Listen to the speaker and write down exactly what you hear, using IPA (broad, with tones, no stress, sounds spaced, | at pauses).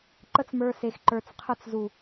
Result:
ǃ ə˦ t͡s m ə˞˧ s e˨ x ǃ ə˞˨ t͡s qʰ ɯ˧ t͡s z u˨